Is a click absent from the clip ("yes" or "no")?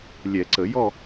no